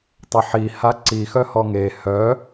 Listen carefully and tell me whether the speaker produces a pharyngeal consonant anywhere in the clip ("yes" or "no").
yes